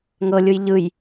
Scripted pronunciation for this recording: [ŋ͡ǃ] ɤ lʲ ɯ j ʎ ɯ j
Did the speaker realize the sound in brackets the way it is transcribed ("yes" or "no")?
no